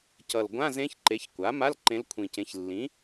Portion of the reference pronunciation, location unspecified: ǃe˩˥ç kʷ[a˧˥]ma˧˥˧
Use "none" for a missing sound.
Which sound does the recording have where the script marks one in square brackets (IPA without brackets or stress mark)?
a˩˥